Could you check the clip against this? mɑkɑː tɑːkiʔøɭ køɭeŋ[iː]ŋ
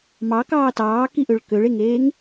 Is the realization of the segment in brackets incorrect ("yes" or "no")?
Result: yes